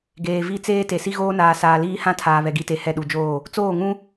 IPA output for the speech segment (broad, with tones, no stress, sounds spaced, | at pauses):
ɡ eː˨ v i˦˨ t͡s eː˦ t e˨ s i˦ ɣ oː˦ n aː˨ s aː˨ l iː˦ h ã˦ tʰ aː˨ β ɛ˨ ɡ i˨ t e˨ h ɛ˦˨ ɗ u˨ d͡ʒ oː˦˨ | t͡s oː˦˨ ŋ ũ˦